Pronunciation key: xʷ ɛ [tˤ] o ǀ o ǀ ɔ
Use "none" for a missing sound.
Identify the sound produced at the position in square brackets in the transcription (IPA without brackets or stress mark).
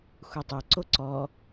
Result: tˤ